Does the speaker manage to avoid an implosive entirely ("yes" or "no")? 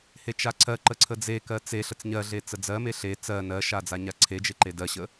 yes